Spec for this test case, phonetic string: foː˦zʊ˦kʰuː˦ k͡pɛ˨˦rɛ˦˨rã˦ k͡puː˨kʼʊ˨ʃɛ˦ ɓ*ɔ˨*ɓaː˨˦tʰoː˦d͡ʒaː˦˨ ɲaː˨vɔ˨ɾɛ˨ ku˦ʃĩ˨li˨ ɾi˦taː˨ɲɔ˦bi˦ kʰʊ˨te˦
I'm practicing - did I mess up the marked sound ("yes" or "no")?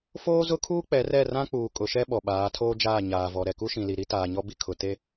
no